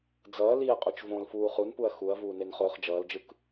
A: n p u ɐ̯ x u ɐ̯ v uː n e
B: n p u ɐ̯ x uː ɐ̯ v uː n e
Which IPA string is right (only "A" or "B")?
A